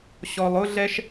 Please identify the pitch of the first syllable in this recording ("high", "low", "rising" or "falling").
low